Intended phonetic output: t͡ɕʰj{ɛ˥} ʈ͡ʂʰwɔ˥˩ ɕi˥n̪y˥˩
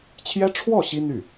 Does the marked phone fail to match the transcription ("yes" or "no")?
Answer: no